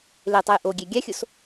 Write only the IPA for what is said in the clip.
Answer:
l e tˤ ɛ j ʔ o ɡʲ ɛ ɡʲ a xʲ o s

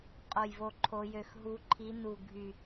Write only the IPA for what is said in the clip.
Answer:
qʼ o˨˩ j v o˨˩ ǃʰ o˩˧ j ø˨˩ x ɦ u˩˧ ǃʰ i˩˧ n u˨˩ ɡʱ y˨˩

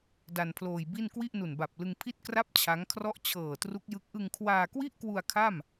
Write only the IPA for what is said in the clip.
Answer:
d a˧ n pʰ l oː˧ j b i˥˩ n k w i˥˩ ʔ n u˨˩ n b a˨˩ p̚ l ɯ˧ ŋ pʰ i˥˩ t̚ k r a˥˩ p̚ t͡ɕʰ a˦˥ ŋ kʰ r ɔ˥˩ ʔ t͡ɕʰ ɤː˨˩ t r u˦˥ k̚ j ɯ˦˥ k̚ ʔ ɯ˧ ŋ kʰ w aː˧ k w i˥˩ ʔ k w u˧ a̯ kʰ a˥˩ m

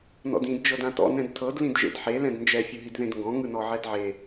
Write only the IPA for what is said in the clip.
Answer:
n ɔ̰ d ĩ d d͡ʒ ɤ d ã t ɔ̰ n ɛ̃ d tʰ ɤ d l ĩ d ʒ ḛ d ħ e l ɛ̃ d n d͡ʒ ɛ fʲ ɯ ɦ i d ð ẽ d ŋ ɡ ɔ̃ ŋ ɯ n ɔ ʕ ɛ d ʕ e

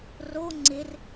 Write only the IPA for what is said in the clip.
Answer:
r o ŋ͡ǀ ɪ r

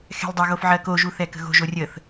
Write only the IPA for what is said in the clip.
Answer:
x ɛ̤ lʲ dˤ ə ɣ o f ʕ ɜ k o ʒ u θ ɛ k ə̤ ɣ o̤ ʒ o rʲ ə θ

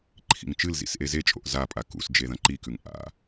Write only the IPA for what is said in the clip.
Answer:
ǃʰ ḭ ŋ t͡ʃ ɨ l z ḭ s ʔ e z e t͡ʃʼ o̰ ʔ z a pʼ a k ṵ s d͡ʒ e ð ɐ̃ ǃ i k ʉ ŋ ʔ a̰

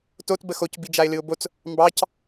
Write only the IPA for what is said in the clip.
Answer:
t o t b ə x o c b i d͡ʒ a ɪ̯ l ɨ ʊ̯ b o t͡s | m b ɑ c

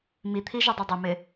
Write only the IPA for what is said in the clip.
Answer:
m i t̪ʰ i ʒ ʊ dˤ ɪ dˤ ə m ɪ

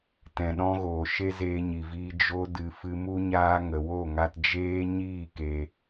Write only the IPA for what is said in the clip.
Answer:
t ɛ̃˨ ɗ ɔ̃˧ ɣ oː˨ ʃ e˦ z eː˧ ɲ i˨ v iː˧ d͡ʒ o˧ d ɨ˨ f ɨ˧ m u˦ ɲ aː˦ ŋ ə˨ w o˦˨ ŋ a˧ t d͡ʒ eː˦ ɲ iː˦˨ k e˨

